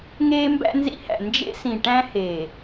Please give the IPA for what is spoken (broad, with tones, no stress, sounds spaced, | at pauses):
ŋ eː˦ m b æ̰˦ n z ḭ˦ h æ̰˨ n d͡ʒ ḛ˦ s ĩ˨ ʈ æ̃˦ h eː˨